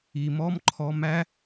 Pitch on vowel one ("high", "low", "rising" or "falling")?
low